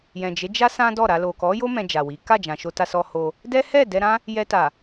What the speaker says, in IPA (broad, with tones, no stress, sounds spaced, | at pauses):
j ɛ̃˨ d͡ʒ e˨˦ d͡ʒ a˦ s ã˦ d ɔ˦˨ ɾ a˧ l o˨ k ɔ˨˦ j o˦ m ɛ̃˧ d͡ʒ a˨ w i˨˦ k a˦˨ d͡ʒ ã˨ ʃ o˧ t a˧ s ɔ˧ h o˧ | d ɛ˦ h ɛ˦˨ d ɛ˧ ɾ ã˦ | j ɛ˧ t a˨